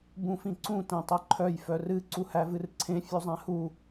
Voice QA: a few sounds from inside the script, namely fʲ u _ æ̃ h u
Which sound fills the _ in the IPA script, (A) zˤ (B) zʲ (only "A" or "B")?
A